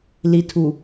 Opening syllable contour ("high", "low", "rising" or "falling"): low